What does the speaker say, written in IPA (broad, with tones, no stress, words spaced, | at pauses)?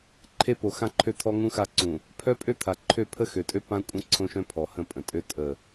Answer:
ǃʰe˦po˨xã˦ǃʰø˦ t̪ʰɔ˦ŋũ˦xa˦˨ǀũ˨ | pʰœ˦ pʼø˦t̪ʰa˨ ǃʰø˦˨pʰə˦xø˨tʼø˦ pã˦kʷʼə̃˦ ǀʰõ˦ʃœ̃˦ pʰɔ˨hə̃˦˨pʼə̃˨tʼø˦ tʼə˦˨